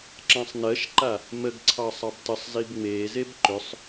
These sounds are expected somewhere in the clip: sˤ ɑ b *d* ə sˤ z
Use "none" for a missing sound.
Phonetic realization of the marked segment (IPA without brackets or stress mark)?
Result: t